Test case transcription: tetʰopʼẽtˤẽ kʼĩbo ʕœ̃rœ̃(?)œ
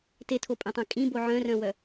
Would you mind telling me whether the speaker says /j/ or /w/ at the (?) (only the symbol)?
w